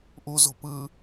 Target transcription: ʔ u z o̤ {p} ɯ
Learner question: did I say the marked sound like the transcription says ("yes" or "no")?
yes